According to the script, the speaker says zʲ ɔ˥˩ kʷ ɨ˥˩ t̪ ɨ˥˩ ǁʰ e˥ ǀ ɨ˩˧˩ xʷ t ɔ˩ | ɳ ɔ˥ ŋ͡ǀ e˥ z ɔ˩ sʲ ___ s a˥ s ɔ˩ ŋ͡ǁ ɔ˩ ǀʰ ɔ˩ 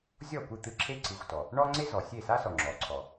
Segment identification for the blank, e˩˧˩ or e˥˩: e˥˩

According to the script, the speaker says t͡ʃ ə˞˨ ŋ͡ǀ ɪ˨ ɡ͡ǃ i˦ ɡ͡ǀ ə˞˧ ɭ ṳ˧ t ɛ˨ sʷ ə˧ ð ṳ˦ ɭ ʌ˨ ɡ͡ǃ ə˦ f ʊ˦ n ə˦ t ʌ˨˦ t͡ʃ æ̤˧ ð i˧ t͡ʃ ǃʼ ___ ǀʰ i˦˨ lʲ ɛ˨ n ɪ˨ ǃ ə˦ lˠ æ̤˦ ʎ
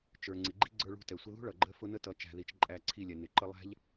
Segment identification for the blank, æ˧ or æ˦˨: æ˦˨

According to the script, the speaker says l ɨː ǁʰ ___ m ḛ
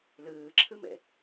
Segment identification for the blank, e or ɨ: ɨ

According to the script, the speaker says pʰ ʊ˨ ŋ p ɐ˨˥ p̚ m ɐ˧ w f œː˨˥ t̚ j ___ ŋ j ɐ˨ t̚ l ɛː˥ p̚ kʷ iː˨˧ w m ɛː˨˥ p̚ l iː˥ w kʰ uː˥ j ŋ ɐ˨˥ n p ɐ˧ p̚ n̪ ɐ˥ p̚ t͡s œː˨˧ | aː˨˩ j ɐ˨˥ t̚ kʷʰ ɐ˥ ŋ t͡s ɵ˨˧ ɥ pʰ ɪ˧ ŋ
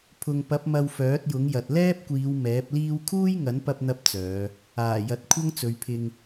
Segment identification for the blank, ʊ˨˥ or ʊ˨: ʊ˨˥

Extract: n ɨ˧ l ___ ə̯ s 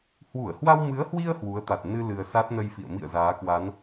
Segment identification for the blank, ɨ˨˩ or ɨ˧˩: ɨ˨˩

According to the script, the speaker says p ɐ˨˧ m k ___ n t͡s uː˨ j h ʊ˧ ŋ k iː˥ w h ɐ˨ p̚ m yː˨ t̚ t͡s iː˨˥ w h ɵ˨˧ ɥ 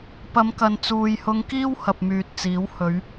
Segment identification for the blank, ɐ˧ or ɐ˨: ɐ˨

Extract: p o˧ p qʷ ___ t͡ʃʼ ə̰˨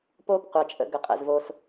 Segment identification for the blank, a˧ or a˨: a˨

